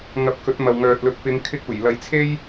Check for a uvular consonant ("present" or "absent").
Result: absent